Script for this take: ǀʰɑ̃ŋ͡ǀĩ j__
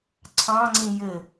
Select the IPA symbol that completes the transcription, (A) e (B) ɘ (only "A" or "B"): B